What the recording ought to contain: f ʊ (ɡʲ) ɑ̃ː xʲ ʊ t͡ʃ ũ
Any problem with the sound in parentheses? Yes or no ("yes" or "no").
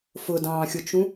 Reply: yes